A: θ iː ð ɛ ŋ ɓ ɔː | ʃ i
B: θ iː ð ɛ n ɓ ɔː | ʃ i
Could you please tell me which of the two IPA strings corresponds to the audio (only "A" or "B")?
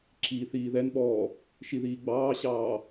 B